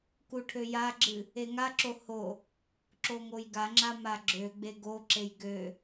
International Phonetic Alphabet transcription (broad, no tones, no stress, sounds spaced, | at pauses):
k u ʈʰ ø j a ɡ͡ǁ ɨ | e ŋ a ǁ o h o | ǁ o ŋ o j ɡ a ŋ͡ǁ a m a ɡ͡ǁ ø ɡ͡b e ɡ o ǁ e j ɡ ø